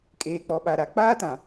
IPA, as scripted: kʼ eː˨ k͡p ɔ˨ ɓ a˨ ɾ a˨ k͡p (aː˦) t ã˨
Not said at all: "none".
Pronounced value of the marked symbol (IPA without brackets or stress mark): aː˦